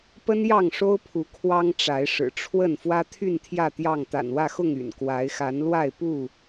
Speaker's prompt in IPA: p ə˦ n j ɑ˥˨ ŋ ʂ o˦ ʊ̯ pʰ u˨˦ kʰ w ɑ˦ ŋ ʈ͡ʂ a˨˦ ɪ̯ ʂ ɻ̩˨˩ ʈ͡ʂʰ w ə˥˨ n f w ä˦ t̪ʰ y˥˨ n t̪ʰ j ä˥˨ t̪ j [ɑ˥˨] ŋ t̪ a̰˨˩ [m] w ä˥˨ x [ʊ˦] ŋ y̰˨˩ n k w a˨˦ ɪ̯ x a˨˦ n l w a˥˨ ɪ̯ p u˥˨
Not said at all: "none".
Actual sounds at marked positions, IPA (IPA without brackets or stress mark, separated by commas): ɑ˥˨, n, ʊ˥˨